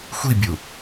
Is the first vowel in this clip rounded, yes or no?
no